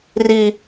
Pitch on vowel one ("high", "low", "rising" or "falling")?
high